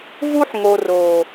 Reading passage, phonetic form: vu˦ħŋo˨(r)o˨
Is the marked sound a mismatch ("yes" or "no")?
no